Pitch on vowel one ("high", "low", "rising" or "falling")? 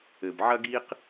low